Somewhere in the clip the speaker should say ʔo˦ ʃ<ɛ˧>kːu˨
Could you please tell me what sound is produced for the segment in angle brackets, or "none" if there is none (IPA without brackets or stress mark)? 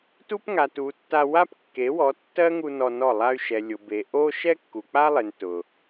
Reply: ɛ˦